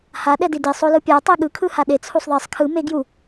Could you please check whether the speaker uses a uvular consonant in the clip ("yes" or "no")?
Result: no